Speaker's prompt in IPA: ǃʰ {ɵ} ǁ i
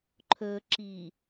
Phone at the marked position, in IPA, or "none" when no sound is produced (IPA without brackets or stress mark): ɵ